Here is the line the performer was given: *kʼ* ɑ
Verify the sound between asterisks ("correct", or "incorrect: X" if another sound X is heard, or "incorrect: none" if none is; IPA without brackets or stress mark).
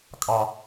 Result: correct